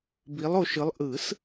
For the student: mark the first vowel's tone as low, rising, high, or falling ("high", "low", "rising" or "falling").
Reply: rising